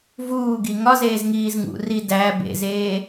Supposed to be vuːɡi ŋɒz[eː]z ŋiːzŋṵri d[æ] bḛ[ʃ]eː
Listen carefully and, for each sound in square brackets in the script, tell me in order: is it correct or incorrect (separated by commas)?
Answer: correct, correct, incorrect